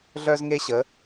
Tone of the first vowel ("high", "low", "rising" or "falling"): high